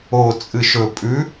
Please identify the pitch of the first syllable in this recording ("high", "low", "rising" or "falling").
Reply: low